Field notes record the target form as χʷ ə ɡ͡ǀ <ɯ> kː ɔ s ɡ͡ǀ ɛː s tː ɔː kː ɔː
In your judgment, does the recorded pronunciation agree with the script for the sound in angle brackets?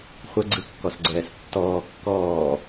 yes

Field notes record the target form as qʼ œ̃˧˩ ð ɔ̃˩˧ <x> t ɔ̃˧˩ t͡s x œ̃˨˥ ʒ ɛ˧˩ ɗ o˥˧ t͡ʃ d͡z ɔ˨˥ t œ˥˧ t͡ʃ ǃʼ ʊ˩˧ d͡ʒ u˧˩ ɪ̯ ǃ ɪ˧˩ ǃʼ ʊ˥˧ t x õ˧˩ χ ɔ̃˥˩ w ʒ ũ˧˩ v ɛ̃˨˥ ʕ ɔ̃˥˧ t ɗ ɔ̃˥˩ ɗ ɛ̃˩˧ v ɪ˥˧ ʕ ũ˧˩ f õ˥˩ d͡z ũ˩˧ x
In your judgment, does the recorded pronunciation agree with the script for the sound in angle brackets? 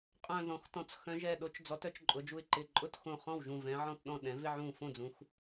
yes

